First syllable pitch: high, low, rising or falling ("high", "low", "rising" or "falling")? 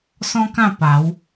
high